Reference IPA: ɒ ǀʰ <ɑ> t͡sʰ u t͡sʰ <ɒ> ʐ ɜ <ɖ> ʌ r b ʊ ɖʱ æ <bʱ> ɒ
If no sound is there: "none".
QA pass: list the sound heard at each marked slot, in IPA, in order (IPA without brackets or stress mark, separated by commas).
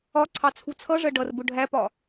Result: ɑ, ʌ, ɖ, p